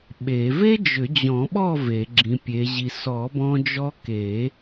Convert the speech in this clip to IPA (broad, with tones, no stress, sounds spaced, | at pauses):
ɓ e˨˩˦ v e˥ d͡ʒ ʏ˨˩˦ d͡ʑ ɔ̃˨˩˦ ɓ ɔ˥˨ v e˨˩˦ ɡ͡ǁ ĩ˨˥ pʲ e˨˥ ʑ i˧ s ɔ˨˩˦ b ɔ̃˧ d͡ʒ ɔ˧ k e˨˩˦